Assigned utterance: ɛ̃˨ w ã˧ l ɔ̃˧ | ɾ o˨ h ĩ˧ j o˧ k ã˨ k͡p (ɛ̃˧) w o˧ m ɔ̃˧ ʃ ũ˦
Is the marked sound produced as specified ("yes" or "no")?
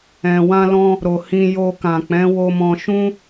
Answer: no